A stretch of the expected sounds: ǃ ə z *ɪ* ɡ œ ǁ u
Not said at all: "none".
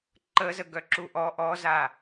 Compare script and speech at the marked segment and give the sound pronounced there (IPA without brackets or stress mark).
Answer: ə